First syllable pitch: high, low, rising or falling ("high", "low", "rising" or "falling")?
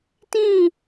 falling